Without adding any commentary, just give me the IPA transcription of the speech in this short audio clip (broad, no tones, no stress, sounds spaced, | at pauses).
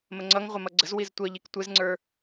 m ə ŋ͡ǀ ʌ ŋ ʁʷ ɪ m ʌ ɡ͡ǀ ə z w i z tʷ ʌ ʎ i k tʷ ɪ z ŋ͡ǀ ə˞